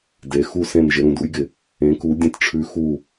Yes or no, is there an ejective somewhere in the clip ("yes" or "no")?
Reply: no